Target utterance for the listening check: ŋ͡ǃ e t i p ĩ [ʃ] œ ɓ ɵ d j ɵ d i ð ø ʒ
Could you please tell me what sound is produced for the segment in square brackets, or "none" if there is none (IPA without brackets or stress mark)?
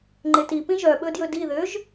ʒ